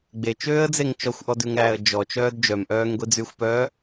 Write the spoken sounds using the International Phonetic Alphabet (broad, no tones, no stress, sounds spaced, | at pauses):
ɡ͡b e t͡ʃ øː ə̯ d͡z e ŋ t͡ʃ ɔ xʷ ʔ ɔ d ʉ ŋ ɾ æː ə̯ d͡ʒ ɔ t͡ʃ œː d d͡ʒ œ m ʔ œː ŋ ɡʷ i d͡z y xʷ p œː